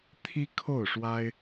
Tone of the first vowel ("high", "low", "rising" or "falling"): high